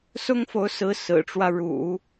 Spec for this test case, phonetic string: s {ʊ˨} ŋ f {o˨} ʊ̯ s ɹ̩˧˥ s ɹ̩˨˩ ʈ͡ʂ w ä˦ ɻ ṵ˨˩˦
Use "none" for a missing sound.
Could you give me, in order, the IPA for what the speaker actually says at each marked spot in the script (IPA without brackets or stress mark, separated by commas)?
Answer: ʊ˥, o˧˥